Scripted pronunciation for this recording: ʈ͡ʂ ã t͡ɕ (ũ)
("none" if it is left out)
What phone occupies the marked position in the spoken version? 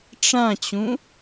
ũ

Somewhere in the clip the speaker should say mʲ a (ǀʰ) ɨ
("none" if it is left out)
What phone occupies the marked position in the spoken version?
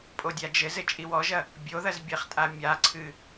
ǀʰ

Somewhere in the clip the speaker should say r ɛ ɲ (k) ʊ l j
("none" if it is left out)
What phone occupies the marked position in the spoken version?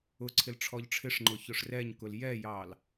k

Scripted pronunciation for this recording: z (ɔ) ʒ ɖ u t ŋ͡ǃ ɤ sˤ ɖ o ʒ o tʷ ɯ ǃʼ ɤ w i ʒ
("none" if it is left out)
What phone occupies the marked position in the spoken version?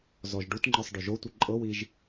ɔ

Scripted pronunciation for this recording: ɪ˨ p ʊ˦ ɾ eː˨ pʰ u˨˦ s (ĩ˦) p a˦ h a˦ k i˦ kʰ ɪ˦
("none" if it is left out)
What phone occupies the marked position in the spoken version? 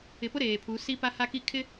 i˦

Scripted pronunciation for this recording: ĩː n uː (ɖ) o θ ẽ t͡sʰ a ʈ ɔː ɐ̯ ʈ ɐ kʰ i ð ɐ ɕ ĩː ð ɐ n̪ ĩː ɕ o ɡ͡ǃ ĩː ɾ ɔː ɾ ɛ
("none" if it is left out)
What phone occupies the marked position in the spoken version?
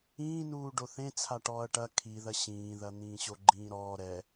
ɖ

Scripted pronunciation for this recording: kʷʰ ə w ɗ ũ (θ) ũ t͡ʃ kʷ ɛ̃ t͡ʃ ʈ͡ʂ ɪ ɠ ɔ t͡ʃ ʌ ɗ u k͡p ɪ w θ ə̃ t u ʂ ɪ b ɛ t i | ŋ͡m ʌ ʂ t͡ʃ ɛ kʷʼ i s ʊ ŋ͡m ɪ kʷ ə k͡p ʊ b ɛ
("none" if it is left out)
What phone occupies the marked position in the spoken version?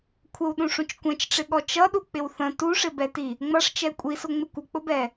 ʂ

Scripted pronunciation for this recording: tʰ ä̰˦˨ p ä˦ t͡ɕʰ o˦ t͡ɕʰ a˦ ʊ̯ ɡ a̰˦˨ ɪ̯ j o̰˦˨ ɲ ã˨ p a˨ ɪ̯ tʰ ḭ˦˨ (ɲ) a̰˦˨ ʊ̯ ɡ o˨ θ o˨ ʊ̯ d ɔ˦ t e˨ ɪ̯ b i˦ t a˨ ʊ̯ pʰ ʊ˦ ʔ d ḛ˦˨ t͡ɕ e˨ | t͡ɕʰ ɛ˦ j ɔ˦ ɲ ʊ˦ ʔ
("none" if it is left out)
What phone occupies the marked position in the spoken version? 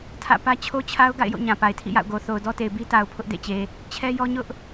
j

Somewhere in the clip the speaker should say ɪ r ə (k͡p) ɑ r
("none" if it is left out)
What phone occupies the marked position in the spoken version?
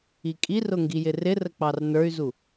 k͡p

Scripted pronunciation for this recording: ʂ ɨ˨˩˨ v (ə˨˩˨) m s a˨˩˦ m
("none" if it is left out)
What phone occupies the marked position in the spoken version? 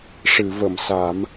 ə˨˩˨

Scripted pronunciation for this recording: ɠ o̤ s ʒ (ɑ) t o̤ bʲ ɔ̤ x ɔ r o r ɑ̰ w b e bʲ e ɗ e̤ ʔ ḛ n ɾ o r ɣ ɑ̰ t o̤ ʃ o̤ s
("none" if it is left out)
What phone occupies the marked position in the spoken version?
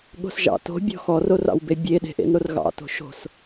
ɑ̰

